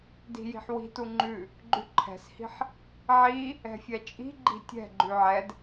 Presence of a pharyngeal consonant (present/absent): present